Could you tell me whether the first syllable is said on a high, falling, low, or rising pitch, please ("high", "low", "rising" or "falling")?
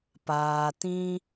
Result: low